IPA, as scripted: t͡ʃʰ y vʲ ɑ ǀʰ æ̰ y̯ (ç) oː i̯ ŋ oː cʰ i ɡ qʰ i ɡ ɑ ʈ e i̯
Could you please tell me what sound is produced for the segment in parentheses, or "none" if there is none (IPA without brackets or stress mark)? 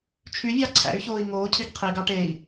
ç